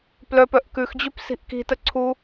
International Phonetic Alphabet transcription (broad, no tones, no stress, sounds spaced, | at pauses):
p l œ p œ ʔ k ʉ x d͡ʑ ʉ p s i̤ ʔ k i̤ t ə ǀʰ u